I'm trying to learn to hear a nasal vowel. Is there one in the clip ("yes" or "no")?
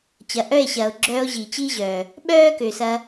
no